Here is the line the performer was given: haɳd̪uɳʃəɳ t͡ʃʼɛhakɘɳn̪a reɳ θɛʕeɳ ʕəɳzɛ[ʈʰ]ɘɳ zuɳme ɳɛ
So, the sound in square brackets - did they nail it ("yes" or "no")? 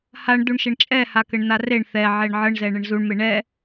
no